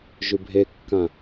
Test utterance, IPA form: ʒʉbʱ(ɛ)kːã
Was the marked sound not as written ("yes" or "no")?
yes